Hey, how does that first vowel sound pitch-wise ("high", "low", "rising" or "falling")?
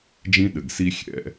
high